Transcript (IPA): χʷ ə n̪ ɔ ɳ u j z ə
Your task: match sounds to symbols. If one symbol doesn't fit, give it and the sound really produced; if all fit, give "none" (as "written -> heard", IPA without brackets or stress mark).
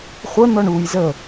none